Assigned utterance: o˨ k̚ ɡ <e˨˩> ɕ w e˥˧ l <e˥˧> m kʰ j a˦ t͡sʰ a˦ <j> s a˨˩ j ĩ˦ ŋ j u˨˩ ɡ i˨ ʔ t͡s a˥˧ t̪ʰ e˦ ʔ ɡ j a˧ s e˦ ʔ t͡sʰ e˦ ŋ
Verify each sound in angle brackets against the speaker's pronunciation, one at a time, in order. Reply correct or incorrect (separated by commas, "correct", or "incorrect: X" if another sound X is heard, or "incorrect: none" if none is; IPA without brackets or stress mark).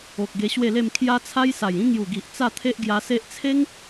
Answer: incorrect: e˧, correct, correct